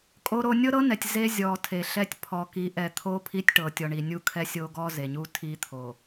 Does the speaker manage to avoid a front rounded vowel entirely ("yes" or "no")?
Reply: yes